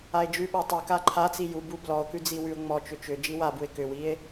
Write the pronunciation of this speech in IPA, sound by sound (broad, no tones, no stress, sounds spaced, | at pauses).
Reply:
a e̯ d͡ʒ ʉ ɓ a tˤ ɘ k a ǃʰ a t͡s i j u b u b l ɔ o̯ k ʉ d͡z i w ʉ o̯ ŋ͡m ɔ t͡ʃ ʏ t͡ʃ ʏ d͡ʒ i w a b u e̯ k ʏ w i e̯